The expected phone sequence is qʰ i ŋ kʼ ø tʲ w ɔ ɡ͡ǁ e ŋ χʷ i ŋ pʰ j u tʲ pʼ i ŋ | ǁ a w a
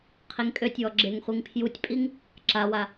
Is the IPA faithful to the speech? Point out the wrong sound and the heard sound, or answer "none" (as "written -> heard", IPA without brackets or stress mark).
none